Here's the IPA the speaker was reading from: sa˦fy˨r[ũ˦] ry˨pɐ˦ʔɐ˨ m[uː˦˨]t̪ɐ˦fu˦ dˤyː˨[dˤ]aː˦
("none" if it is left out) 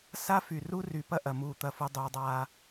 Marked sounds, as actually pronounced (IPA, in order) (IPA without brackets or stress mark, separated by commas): u˦, uː˦˨, dˤ